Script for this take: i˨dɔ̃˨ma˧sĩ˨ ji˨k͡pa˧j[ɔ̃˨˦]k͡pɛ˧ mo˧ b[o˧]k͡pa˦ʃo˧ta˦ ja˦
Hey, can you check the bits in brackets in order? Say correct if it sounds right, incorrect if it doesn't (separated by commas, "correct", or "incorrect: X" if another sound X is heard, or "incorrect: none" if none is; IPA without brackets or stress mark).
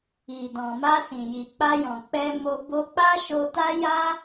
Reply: incorrect: ɔ̃˨, correct